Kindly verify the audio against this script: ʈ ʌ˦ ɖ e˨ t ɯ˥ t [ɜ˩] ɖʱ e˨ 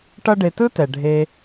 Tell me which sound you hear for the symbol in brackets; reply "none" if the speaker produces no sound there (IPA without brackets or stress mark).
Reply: ɛ˩